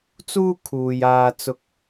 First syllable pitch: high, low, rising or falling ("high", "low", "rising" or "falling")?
high